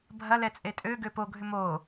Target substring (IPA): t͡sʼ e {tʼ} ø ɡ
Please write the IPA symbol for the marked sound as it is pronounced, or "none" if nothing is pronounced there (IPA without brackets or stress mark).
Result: tʼ